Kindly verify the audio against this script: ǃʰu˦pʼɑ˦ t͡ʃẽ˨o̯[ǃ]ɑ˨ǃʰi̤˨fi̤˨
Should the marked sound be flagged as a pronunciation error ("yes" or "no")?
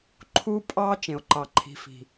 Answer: no